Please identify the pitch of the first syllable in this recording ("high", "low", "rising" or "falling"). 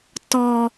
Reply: high